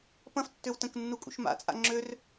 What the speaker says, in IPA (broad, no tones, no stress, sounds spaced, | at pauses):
p ɐ̃ f tː ø w t ə̃ k nː u kʼ ṵ ʃ m a̰ t͡sʼ a̰ ŋ͡ǁ ø r